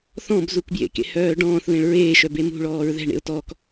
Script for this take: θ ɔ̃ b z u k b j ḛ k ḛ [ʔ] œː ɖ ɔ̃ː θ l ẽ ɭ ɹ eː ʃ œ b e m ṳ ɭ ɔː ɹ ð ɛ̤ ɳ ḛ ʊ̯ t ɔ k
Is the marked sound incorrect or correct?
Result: incorrect